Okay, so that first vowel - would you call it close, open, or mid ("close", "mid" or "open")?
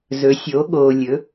mid